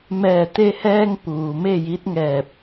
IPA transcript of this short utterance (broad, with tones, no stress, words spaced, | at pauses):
mɛː˧˩t̪e˧hɛː˧ŋ puː˩me˥˨ji˧˥t̚ŋɛː˧˩p̚